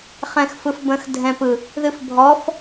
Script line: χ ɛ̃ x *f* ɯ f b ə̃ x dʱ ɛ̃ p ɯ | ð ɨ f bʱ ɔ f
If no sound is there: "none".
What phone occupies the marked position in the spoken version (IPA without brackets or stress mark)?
f